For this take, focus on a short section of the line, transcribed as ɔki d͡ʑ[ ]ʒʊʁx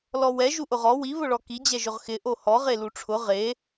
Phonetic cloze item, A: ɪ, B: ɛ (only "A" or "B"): B